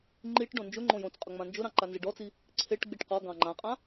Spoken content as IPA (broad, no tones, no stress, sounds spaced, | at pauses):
ŋ͡ǃ i ʈ ɖ õ n d͡ʒ ʊ ŋ͡ǃ õ j õ t͡s qʼ ʊ ŋ͡m ã n d͡ʒ ʊ ɾ ɑ̃ ǃ a n z ɪ ɖ ɔ t͡s i | ǀʰ e ʈ ɡ͡b i ʈ q ɔ ɡ ɑ̃ ŋ͡ǃ ã qʼ ã